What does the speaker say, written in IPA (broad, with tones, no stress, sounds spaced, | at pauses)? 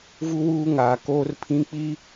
v u˦ w uː˦ ŋ aː˨ k oː˦ r pʰ ĩ˦ k͡p iː˦